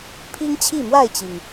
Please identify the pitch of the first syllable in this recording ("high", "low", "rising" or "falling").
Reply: high